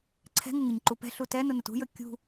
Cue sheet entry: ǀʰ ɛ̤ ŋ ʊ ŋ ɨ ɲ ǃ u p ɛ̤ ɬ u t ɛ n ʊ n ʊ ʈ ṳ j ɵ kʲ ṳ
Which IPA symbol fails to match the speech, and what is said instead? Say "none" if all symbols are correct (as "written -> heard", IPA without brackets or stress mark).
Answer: ʈ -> t